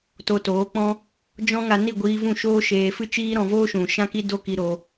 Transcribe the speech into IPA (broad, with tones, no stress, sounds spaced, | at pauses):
t o˧ t oː˨˦ k͡p ɔ̃˦ | d͡ʒ ɔ̃˦ ŋ a˧ n i˦˨ ɡʷ iː˧ v ũ˦˨ ʃ oː˦ ʃ eː˧ f ɨ˦ t͡ʃ iː˦ ɾ ɔ̃˧ v oː˦ ʃ ũ˨ ʃ ã˦ k i˦ d o˦ k i˧ ɾ o˧